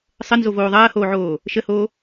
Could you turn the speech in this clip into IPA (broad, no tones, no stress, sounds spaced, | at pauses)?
sˤ ə n z o v oː ðˤ ɐː h oː ʕ oː | ʃ ə h oː